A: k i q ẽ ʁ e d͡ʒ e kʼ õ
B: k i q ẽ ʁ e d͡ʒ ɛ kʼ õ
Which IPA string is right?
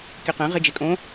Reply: B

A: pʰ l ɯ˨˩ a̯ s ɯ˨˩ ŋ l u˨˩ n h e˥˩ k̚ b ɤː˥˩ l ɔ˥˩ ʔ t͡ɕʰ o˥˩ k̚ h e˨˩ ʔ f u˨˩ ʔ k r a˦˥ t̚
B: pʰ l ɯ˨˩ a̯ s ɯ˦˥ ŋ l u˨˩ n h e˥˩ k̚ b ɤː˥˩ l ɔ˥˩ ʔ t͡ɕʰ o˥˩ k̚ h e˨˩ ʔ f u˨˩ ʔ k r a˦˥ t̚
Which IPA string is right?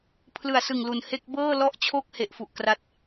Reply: A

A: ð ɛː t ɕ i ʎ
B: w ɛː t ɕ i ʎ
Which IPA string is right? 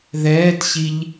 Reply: A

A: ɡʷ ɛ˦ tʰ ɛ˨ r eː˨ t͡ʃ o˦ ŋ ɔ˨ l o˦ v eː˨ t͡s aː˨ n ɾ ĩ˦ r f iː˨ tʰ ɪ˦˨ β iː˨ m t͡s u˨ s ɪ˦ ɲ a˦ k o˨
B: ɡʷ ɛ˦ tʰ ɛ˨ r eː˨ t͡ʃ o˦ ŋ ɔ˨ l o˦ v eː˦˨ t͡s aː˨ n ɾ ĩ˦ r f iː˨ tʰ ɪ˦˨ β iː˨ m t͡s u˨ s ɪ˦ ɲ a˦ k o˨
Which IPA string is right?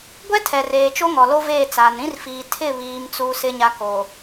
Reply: B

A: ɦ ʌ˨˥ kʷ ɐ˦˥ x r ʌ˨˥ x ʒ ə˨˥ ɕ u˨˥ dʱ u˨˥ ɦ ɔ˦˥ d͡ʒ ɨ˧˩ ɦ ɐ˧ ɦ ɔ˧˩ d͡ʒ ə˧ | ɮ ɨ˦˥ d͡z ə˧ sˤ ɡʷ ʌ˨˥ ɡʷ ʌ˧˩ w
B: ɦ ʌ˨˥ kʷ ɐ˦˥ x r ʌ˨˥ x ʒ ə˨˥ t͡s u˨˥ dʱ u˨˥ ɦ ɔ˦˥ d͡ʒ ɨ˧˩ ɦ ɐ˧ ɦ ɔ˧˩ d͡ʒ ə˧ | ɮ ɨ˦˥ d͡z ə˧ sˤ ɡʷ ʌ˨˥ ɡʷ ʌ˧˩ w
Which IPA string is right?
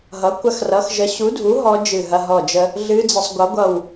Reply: A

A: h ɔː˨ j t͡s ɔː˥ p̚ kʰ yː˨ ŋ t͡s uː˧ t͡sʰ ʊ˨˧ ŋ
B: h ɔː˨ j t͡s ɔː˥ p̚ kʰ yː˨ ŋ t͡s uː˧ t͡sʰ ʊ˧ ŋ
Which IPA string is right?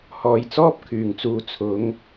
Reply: A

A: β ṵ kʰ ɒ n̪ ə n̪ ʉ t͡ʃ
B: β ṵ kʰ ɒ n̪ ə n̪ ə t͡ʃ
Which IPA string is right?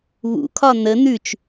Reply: A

